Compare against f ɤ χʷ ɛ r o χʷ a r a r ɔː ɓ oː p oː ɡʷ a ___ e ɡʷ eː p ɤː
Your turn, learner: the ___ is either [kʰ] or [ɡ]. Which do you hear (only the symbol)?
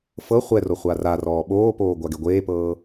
ɡ